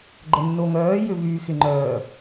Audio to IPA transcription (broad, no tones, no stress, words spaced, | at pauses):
ɡ͡ǃənːoŋœː jʏvyːxɪŋ͡ǃœː